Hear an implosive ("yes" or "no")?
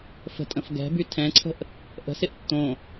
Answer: no